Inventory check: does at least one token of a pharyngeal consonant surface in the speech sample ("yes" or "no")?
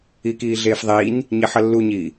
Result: yes